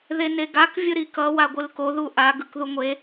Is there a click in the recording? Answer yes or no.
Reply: no